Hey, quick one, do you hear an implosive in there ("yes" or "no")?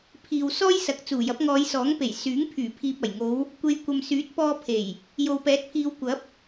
no